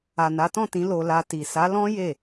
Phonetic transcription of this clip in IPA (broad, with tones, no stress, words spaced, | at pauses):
a˨na˨˦tɔ̃˦˨tĩ˨˦ lo˧la˧ti˨ sa˨˦lɔ̃˦ je˦˨